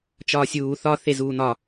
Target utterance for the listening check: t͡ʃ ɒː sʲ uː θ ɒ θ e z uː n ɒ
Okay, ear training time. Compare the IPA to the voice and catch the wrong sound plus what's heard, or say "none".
none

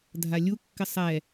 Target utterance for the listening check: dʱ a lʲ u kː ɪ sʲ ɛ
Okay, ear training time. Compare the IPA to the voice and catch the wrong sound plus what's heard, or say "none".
sʲ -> sˤ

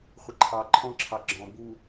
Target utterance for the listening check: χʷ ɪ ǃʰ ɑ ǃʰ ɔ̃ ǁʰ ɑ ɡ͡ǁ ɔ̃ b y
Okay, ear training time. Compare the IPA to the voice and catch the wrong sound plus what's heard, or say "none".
y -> u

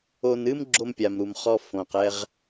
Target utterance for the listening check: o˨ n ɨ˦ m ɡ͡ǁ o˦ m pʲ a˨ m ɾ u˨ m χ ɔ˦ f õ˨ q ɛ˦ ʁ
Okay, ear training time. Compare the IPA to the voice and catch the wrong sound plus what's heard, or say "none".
none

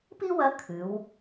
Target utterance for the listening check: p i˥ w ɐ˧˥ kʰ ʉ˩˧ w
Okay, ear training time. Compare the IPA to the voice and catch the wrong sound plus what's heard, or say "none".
none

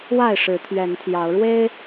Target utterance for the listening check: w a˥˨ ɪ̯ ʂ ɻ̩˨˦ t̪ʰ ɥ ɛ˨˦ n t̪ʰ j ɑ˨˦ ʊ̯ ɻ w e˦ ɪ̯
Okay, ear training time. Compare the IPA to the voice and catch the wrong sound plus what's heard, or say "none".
none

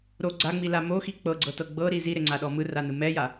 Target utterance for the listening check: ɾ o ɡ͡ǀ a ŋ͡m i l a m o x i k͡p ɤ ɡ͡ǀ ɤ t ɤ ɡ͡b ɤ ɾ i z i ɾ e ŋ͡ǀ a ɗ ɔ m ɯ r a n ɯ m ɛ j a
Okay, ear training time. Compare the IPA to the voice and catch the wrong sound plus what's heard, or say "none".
none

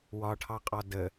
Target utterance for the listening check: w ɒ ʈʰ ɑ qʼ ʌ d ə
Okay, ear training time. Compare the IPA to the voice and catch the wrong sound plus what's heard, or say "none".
ʌ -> ɒ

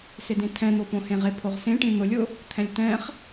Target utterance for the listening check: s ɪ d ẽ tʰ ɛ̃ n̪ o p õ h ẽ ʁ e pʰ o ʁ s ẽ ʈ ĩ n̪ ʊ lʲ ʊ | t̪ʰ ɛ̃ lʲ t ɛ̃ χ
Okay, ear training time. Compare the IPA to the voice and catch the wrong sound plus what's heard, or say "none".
none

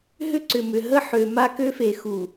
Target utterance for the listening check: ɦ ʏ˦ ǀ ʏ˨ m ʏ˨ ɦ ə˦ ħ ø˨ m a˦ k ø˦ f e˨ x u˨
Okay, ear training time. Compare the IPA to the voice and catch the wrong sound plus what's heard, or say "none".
none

